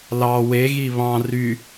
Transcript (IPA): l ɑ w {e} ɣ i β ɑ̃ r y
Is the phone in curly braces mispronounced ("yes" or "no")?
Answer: no